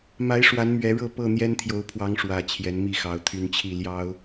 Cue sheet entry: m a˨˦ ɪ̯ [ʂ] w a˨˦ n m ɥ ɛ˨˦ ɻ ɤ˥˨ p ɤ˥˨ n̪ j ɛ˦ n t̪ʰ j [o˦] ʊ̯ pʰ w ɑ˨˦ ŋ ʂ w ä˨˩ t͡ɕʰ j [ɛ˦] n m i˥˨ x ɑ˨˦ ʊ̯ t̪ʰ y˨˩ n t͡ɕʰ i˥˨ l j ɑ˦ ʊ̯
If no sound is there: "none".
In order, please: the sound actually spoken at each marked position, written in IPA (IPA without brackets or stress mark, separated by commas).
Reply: ʂ, o˨˦, ɛ˨˦